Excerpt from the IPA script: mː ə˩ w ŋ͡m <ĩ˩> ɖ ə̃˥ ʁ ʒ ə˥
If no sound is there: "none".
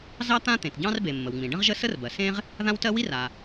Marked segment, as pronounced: ĩ˩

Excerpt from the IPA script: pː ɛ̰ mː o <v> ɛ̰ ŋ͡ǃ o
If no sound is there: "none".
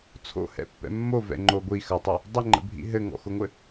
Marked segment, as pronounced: v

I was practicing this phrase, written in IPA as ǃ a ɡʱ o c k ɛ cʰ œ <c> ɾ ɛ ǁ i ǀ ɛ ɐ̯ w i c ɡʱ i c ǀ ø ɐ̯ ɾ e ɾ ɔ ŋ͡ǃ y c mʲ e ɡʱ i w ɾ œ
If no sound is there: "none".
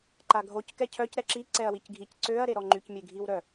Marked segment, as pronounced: c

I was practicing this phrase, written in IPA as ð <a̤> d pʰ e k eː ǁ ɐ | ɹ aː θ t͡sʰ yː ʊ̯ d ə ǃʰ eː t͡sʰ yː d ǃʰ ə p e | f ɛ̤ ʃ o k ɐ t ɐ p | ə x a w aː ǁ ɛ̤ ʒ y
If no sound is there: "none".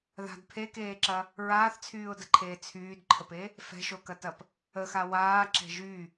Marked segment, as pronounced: a̤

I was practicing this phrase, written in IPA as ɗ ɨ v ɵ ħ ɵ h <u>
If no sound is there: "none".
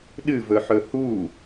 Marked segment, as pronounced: u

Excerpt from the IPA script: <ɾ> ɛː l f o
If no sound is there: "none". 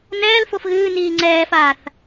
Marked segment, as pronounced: n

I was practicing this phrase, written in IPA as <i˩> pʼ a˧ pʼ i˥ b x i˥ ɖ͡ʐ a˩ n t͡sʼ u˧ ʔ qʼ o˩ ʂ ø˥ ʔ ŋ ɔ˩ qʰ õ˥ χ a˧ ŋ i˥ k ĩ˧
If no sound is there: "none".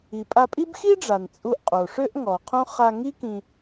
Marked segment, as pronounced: i˩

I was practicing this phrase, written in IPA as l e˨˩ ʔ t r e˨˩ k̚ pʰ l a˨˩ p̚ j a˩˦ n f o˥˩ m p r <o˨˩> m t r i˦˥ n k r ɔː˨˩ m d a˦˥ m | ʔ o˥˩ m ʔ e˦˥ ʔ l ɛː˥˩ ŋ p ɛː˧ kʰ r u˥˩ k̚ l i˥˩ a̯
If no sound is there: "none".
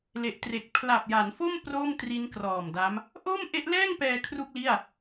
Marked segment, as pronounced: o˥˩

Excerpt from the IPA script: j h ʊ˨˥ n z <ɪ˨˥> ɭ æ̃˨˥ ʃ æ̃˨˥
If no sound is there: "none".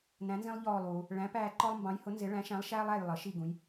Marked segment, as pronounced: ɪ˨˥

